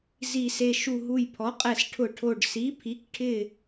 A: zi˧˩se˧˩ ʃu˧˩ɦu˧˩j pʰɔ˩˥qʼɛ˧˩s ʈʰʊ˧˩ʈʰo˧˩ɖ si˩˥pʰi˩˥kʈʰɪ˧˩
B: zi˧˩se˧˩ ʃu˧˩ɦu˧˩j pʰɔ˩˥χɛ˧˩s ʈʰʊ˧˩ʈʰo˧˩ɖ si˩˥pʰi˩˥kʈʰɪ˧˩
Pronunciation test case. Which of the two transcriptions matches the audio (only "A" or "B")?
A